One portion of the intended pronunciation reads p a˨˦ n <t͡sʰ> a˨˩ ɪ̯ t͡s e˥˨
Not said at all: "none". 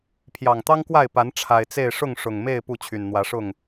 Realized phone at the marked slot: ʈ͡ʂʰ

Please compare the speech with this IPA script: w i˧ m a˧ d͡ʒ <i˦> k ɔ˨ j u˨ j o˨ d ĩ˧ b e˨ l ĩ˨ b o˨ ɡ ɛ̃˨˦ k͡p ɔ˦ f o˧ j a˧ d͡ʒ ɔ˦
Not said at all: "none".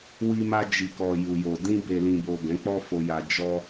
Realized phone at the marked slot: i˨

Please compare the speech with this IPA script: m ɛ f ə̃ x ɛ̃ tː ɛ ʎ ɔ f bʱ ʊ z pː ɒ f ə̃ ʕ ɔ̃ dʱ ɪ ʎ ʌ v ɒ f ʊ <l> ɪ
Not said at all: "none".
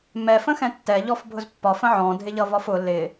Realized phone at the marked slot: l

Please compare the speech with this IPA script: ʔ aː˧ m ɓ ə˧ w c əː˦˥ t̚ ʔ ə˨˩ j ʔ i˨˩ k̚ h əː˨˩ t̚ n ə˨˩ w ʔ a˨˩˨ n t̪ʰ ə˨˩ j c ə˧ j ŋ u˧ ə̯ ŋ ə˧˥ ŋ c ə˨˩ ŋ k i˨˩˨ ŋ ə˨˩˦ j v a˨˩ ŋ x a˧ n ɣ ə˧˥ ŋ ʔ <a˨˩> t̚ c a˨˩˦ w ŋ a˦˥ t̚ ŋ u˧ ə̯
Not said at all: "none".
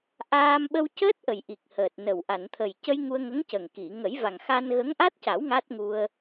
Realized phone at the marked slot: a˦˥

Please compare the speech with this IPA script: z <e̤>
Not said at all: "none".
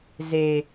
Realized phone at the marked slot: e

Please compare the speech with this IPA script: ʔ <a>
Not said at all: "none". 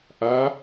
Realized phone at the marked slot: a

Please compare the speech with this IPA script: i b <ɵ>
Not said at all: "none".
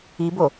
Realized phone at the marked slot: o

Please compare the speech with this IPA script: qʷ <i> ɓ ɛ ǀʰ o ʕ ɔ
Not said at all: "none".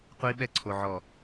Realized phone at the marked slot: i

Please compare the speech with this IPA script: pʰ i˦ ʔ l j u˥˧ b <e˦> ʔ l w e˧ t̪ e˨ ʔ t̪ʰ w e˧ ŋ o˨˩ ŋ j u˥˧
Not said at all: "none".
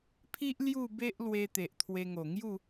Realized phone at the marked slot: e˦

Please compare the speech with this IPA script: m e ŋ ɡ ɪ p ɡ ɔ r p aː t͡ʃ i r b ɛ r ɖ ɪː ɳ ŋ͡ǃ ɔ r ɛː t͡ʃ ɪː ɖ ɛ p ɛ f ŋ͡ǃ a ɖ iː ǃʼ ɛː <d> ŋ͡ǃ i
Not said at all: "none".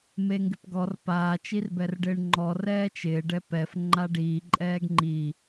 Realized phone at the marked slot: ɡ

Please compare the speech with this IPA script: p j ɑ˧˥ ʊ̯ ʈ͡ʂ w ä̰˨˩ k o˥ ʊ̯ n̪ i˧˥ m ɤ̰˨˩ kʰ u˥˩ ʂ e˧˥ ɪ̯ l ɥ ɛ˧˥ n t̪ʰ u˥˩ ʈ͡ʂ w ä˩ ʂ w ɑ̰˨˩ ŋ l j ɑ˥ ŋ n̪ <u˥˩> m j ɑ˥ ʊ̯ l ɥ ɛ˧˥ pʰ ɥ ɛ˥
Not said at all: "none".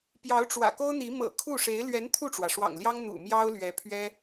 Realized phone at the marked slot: ṵ˨˩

